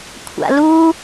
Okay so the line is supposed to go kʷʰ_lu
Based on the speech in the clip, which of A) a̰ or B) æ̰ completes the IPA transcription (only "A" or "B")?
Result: A